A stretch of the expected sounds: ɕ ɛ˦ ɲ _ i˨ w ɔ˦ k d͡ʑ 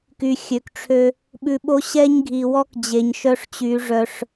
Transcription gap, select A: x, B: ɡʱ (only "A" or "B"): B